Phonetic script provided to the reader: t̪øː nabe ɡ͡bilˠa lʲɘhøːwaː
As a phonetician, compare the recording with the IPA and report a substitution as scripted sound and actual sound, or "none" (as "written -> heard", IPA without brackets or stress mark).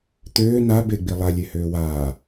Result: ɘ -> e